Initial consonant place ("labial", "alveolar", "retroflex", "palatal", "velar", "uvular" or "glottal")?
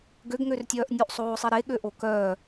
velar